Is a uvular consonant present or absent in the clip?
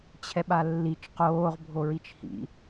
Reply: present